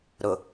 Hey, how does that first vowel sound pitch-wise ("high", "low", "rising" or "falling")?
low